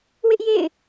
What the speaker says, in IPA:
w ɪ˦ ʔ j ḛ˦˨ ɪ̯

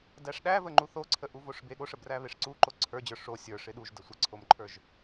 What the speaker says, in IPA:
d æ ʂ ɗ æ v ə ŋ͡ǃ u θ o ǀʰ ə ʔ u v o ʂ b e ɠ o ʂ ə b r æ β e ʂ ǀ u ǃ o ǀʰ ə˞ d͡ʑ ə˞ ʂ o sʲ ə˞ ʂ ɪ ɗ u ʒ d ə sʷ ə ǀʰ o m ǃʰ ə˞ ʒ

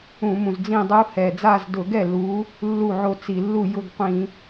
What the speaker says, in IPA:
ũ˧˩˧ m ũ˨˩ z d͡z ĩ˥˧ dˤ u˦˥ h ɛ˨˩ d͡z a˥˧ z d ʊ˧˩˧ ɡ ɛ˥˩ l u˨˦ | lː u˥˩ ʕ o˥˩ t͡s i˧˩˧ lː u˥˩ j ʊ˥˧ ɡ qʷ ĩ˧˩˧

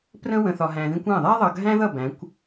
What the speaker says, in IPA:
p r ə̃˦ w ə̃˨ θ ɒ˨ ɦ æ̃˨ ð ĩ˦ kʷ æ̃˦˨ ðˤ æ˦ ðˤ ʌ˨ ɡʱ æ̃˦ ð ʌ˦˨ b æ̃˨˦ kʷ

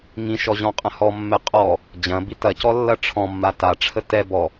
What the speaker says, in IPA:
ŋ ĩ ʃ ɔ ʑ ɔ̃ qʼ ɐ̃ h ɔ mː ɛ qʼ ɔ | d͡ʑ ɐ̃ b i t ɐ c ɔ lː ɐ ʈ͡ʂʰ ɔ̃ mː a t a ʈ͡ʂʰ ə t ɛ b ɔ

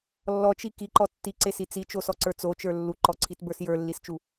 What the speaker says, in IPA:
lː ɔ t͡ʃ i k i ǃ ɔ tː i ǀ e s i t͡s i t͡ʃ o s ɔ ǀ ə˞ t͡s o t͡ʃ ə˞ lː u ǃ ɔ ǀʰ i t b ə˞ s j ə˞ lː i s t͡ʃ u

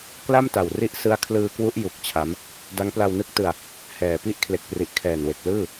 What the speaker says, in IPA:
k l a˥˩ m t a˨˩ w r i˦˥ ʔ s ɯ˦˥ a̯ kʰ l ɯː˧ k w u˦˥ ʔ j u˨˩ k̚ t͡ɕʰ a˦˥ m | d a˦˥ ŋ p l a˧ w n ɯ˦˥ k̚ t ɯ˧ a̯ | h ɛː˨˩ p i˥˩ ʔ kʰ l e˨˩ k̚ p r i˨˩ ʔ kʰ ɛː˨˩ n w e˨˩ k̚ l ɯː˥˩

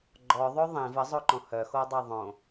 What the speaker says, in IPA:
ɡ͡ǃ ɔ ðˤ o ðˤ ĩ v ə zˤ o ǃ õ h œ x o dˤ e ðˤ õ

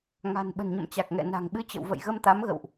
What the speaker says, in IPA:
ŋ a̤˨˩ n ɓ ə̤˨˩ n ɲ ə̰˧˨ m t͡ɕ a˨˩ k̚ ŋ ɛ̰˧˨ n a̤˨˩ ŋ ɓ ɨ˧ t͡ɕ ə̰˧˨ w v ə̰˧˨ j ɣ ə˧ m t̪ a˨˦ m ɣ ə̰˧˨ w ʔ

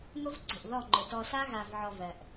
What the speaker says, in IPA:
ŋ ʊ˦ v ǀ e̤˨ ʔ ð ɔ˦˨ ŋ͡ǃ ʊ˨ t ɔ˨ s a˦ ɣ a˨ v ʕ ɔ˨ v ɜ˨ ʔ

